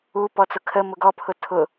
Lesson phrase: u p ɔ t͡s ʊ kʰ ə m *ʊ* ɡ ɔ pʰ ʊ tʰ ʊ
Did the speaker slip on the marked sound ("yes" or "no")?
no